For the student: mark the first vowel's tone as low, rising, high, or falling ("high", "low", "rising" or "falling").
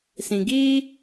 low